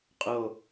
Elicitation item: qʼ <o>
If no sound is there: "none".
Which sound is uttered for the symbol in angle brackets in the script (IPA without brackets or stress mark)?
o